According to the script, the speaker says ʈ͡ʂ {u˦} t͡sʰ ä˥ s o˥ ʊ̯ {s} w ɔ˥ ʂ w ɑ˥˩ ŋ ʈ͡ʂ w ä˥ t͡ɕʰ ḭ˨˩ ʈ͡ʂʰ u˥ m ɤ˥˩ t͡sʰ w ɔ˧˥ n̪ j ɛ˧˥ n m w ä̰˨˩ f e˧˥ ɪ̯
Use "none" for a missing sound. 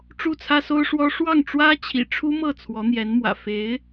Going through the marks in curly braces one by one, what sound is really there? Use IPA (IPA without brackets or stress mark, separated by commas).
u˥˩, ʂ